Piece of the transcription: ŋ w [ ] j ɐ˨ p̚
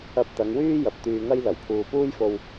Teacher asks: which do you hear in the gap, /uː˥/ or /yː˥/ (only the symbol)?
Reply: yː˥